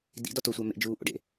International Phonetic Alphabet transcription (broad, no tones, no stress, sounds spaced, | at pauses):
d ḭ d ɒ t o sʷ æ m ḛ d͡ʒ uː ʔ o̰ ɖ ḛ